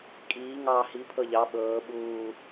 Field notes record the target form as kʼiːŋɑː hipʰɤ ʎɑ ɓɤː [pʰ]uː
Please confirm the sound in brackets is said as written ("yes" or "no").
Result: no